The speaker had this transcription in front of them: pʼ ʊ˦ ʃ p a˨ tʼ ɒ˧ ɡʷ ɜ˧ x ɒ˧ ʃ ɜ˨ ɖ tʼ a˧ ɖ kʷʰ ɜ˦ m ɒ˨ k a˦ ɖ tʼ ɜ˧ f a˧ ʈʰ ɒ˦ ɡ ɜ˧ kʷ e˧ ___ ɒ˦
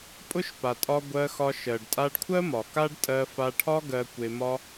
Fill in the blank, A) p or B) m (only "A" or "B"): B